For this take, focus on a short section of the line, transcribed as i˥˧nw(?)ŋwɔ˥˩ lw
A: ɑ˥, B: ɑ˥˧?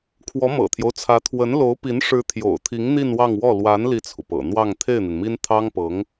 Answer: B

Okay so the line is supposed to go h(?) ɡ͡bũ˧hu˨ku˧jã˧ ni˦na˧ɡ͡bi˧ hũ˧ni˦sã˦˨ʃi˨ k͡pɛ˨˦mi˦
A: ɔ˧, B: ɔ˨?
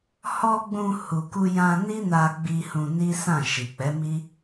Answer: A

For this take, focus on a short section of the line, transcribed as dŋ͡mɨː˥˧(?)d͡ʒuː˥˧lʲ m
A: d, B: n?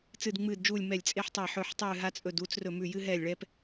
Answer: A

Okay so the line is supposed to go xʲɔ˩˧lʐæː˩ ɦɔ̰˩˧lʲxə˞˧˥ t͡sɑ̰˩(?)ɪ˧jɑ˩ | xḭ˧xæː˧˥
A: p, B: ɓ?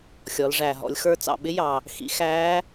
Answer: B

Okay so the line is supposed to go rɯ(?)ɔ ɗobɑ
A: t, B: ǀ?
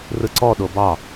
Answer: B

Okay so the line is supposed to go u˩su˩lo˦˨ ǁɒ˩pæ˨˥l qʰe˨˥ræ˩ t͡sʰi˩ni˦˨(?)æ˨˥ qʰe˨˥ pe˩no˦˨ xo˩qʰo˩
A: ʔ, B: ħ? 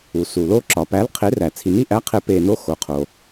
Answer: A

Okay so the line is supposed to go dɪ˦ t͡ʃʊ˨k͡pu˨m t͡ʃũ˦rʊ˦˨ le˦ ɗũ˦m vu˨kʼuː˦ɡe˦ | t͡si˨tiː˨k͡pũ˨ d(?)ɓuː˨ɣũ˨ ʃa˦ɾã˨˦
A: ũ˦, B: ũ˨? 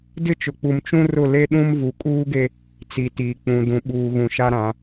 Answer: B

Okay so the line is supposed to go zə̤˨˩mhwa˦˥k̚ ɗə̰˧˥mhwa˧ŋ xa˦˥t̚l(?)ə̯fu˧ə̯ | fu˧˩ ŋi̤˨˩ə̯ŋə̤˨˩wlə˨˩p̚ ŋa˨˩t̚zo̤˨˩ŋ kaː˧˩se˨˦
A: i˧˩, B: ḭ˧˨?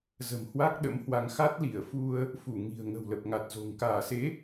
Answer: A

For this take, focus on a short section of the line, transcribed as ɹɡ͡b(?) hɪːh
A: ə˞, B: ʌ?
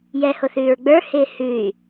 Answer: A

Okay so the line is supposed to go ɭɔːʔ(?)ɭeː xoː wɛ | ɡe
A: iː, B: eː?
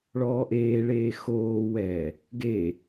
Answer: B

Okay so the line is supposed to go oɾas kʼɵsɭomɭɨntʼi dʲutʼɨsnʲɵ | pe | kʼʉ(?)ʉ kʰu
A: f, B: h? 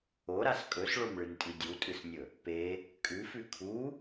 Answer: A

